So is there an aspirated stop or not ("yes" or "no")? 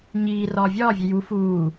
no